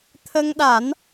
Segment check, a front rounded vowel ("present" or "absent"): absent